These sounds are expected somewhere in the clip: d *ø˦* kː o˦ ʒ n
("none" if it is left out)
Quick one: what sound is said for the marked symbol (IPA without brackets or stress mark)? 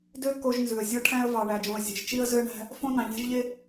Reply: ø˦